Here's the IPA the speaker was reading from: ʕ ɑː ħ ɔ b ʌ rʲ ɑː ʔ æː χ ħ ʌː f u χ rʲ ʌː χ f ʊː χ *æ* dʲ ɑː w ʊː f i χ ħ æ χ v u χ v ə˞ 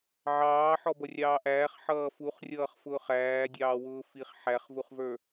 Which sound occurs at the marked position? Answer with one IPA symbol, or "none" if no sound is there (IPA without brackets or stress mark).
æː